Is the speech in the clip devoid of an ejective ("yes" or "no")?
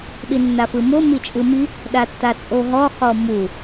no